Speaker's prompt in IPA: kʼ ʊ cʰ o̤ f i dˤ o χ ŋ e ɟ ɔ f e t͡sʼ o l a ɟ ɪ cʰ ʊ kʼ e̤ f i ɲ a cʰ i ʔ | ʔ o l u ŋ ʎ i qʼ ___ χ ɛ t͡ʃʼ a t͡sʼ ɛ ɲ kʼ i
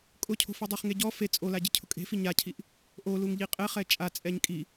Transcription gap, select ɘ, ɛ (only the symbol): ɛ